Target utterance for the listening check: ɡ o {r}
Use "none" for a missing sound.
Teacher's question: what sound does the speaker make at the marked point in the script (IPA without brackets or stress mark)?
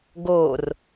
r